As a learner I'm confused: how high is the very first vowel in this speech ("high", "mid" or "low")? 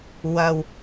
low